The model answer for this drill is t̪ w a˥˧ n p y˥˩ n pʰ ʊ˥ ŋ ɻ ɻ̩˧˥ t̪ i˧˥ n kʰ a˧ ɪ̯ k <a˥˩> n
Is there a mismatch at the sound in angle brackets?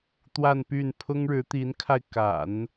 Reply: yes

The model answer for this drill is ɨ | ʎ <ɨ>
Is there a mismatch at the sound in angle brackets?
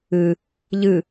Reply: no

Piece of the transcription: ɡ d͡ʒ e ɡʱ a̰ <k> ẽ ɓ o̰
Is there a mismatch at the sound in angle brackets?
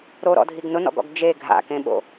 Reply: no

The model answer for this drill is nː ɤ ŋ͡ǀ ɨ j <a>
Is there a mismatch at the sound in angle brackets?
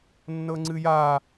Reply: no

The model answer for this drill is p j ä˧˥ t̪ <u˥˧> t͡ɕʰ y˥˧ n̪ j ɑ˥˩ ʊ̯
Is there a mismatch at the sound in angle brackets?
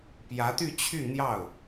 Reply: yes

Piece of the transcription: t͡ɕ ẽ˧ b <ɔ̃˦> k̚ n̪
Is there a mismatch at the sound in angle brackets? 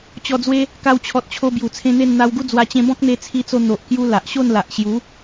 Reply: no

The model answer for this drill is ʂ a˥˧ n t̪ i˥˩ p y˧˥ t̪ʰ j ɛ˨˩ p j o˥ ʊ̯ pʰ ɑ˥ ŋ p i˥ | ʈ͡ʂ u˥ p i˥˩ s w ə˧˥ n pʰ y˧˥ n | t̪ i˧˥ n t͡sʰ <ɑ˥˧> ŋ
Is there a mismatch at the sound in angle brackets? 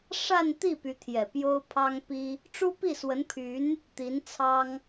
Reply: yes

